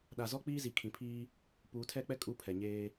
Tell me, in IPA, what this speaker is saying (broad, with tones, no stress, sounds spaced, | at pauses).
ɗ a˨ z ɔ˦ k͡p iː˦ z i˨ kʰ ĩ˨ pʰ iː˦ | p uː˨ tʰ ɛ˦˨ k͡p ɛ˦ kʼ u˦ pʰ ɛ˨ ɲ eː˦